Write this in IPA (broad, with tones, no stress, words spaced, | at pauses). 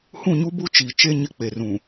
hũ˦˨ɲu˦bu˦ t͡ʃi˨t͡ʃe˦ ɲɪ˦k͡pe˨rũ˨